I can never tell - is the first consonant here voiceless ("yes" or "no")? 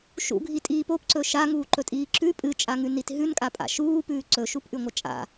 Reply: yes